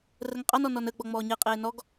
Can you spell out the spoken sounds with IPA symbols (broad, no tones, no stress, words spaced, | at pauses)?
rəŋqʼɑnɔ nɔnəɡ͡bɔ ŋ͡mɔːɲeqʼeː nɔɡ